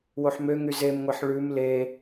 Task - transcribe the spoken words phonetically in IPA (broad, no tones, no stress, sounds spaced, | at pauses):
w o ħ m ø ŋ y z e m ŋʷ e ħ ɭ ʉ m l e